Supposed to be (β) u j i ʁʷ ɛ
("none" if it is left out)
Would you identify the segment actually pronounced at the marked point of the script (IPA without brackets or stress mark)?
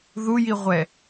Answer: ð